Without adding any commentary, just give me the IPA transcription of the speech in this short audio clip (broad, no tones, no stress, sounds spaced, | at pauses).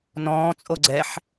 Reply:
n ɔ̃ː t͡sʼ o ɡ͡ǀ ɛ ħ